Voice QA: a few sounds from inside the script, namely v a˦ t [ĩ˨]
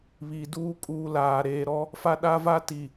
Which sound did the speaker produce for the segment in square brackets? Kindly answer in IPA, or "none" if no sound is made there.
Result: i˨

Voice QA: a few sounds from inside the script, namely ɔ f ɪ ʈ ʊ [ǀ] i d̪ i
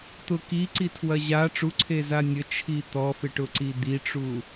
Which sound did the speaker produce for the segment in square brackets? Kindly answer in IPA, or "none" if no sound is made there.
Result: ǀ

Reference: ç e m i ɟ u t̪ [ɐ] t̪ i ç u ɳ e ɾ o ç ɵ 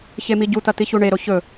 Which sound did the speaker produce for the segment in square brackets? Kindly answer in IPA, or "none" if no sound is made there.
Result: ɐ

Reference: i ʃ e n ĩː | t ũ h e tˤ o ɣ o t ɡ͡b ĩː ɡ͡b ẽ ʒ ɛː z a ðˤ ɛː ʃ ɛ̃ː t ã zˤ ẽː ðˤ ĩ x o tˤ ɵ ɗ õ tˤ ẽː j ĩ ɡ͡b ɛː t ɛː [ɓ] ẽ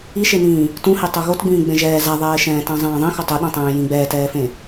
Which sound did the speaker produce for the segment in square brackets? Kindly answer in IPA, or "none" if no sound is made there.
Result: f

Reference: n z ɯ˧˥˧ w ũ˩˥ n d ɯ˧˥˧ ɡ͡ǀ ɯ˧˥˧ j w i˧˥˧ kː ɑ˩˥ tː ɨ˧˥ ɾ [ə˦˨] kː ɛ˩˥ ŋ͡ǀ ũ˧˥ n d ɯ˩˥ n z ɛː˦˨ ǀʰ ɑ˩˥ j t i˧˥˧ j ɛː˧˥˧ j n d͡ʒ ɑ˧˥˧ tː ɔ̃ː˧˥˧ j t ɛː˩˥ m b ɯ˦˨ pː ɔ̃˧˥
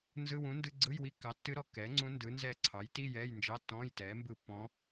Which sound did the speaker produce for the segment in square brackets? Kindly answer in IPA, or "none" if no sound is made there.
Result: ɔ˦˨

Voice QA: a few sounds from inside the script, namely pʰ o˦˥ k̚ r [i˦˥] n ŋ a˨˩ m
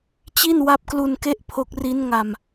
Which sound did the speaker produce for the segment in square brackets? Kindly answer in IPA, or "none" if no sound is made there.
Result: i˦˥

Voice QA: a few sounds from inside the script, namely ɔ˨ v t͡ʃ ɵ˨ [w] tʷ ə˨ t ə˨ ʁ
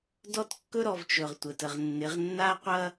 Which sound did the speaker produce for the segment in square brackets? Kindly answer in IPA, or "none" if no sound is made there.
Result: ʁ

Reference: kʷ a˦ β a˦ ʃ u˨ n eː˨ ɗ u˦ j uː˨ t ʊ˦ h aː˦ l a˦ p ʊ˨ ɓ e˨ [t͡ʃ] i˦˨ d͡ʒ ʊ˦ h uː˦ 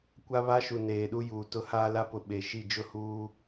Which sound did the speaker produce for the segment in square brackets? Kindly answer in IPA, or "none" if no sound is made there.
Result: ʃ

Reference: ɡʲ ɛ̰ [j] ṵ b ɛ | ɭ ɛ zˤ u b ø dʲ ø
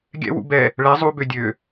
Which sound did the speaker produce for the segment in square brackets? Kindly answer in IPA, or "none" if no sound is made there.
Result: w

